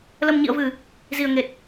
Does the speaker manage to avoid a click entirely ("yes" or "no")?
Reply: yes